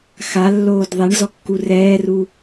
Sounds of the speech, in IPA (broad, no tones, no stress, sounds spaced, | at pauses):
x a lː oː d ðˤ e ɳ z ɔ kː u r ɛː r u